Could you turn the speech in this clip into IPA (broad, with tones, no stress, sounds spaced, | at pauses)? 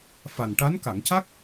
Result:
f a˨˩ n ʈ a˧˥ n k a˨˩˨ ŋ c a˦˥ k̚